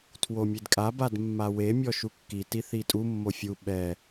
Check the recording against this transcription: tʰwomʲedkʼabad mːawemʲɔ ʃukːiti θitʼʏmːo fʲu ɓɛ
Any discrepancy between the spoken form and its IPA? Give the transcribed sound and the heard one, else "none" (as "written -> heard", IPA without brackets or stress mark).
ʏ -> u